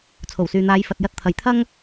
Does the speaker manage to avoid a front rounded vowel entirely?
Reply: no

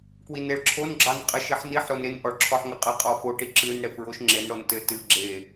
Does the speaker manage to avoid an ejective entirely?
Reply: no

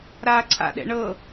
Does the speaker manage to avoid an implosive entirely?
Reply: no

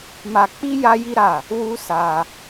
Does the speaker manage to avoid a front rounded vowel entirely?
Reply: yes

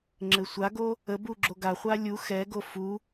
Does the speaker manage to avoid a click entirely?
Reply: no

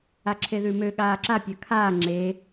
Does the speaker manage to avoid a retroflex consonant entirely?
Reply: yes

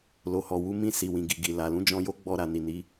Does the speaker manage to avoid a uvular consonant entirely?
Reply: yes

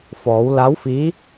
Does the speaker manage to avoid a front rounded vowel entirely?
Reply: yes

